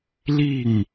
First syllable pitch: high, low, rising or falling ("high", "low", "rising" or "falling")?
falling